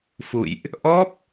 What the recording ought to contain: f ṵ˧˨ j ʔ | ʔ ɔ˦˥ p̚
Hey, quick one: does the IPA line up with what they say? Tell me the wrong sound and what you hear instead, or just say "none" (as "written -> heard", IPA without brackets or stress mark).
none